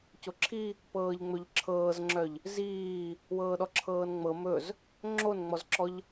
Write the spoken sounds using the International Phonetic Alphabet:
coǁʰi | pɤːʎŋ͡mɵʎǁʰɤːzŋ͡ǁœʎ | ziː | wɤːɗɔǁʰɤːnŋ͡mɤ mɵz | ŋ͡ǁonŋ͡mɔzǁɔʎ

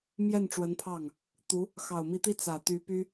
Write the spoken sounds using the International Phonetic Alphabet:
mjɛ˥˩nʈ͡ʂwə˧˥npʰɑ˥˩ŋ | t̪u˧˥ | xɑ˨˩ʊ̯mi˧˥t̪i˥ t͡sä˨˩t̪y˧˥py˥

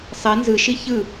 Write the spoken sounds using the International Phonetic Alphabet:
sˤɛ nzɯʃi çɯ

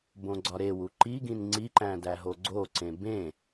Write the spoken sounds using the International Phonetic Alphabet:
bõɡ͡ǀɒɾewu ǃiɡĩn ŋ͡ǀiǃæ̃ dæɦoɡ͡ǀoǀẽ bẽ

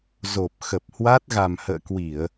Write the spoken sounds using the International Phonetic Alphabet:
zo˨˩p̚ xə˨˩p̚hwa˦˥t̚ ɣa˨˩mhə̰ː˧˨kwi˧˩˨ə̯

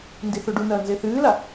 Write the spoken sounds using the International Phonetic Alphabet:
ndiθoɖunɐː nzeθɨːla

